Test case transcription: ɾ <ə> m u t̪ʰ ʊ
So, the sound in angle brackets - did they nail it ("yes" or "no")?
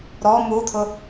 no